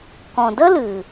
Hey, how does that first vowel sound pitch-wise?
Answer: low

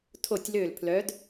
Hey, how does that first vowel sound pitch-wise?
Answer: falling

